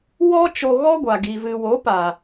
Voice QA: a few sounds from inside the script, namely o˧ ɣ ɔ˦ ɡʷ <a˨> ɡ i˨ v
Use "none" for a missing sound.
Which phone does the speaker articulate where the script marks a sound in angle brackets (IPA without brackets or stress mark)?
a˨